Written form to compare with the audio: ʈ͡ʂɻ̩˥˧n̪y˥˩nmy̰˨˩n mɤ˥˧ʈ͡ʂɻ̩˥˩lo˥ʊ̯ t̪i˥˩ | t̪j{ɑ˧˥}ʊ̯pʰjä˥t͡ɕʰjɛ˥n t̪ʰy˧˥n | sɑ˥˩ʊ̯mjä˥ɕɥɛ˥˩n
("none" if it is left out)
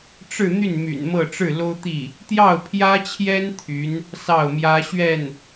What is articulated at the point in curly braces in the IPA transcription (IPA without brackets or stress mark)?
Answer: ɑ˥˩